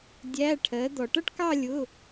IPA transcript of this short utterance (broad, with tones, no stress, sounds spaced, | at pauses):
dʲ æ˧˥˧ ʈʰ ɜ˨˥ d̪ ɔ˨ ʈ ʌ˥˧ ʈ k ɑ˥˧ lʲ ʊ˧˥˧